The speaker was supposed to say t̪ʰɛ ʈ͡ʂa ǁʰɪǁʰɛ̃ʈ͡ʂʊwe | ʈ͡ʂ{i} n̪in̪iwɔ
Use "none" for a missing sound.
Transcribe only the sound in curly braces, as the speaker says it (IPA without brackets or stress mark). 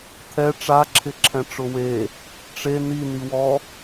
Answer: e